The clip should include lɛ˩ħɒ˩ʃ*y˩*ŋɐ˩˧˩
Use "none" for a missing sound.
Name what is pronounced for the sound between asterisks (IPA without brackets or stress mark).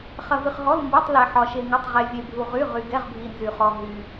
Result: e˩